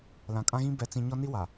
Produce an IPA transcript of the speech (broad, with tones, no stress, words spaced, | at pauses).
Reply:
lã˨kʼã˦ɣĩ˦ bɛ˨t͡sĩ˨ ɲɔ˦ ni˦wa˨